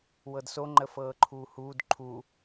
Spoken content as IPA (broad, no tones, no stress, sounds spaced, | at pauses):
w ɤ d s o ŋ͡ǃ ə f ɤː ǃʰ uː h uː d ǃʰ u